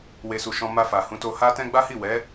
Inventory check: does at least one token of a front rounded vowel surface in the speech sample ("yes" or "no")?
no